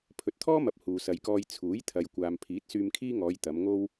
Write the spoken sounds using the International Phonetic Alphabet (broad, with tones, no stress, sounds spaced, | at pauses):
pʰ ɵ˨ t̚ t̪ʰ ɔː˥ m ɐ˨ p̚ h uː˨ s ɐ˨ j k ɔː˧ j t͡sʰ uː˨˥ j t̪ʰ ɐ˨ j kʷ aː˨ m pʰ iː˨˥ t̚ s yː˧ m kʰ iː˥ ŋ ɔː˨˧ j t̪ ɐ˨˧ m ŋ o˥ w